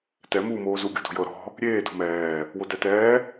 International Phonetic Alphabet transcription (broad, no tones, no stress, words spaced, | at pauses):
tɛ muːmoːzu ɡʲo̤do̤jɤ ɾɔ̤ | ɾʲeː do̤mɛː | wodɛtɛː